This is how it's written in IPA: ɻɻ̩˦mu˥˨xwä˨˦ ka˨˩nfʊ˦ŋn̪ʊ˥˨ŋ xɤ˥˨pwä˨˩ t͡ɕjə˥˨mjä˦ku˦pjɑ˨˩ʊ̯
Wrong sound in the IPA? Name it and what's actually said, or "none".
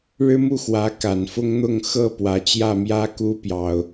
ə˥˨ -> ä˥˨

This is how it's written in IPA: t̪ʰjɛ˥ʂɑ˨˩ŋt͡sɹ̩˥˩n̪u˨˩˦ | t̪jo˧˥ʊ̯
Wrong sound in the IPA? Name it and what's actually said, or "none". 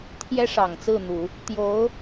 none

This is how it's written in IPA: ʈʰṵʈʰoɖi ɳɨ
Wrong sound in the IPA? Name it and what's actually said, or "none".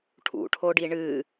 none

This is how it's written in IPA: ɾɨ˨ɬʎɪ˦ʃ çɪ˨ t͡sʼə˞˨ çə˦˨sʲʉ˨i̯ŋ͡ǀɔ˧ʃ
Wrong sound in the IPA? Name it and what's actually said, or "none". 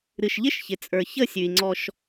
ɬ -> ʃ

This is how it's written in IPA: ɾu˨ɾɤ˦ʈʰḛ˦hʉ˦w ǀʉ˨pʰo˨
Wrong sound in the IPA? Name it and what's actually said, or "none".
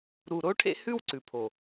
ɤ˦ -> o˦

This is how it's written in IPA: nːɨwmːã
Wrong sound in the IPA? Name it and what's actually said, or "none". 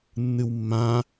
none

